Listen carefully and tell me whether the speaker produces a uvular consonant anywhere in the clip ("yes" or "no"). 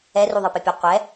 yes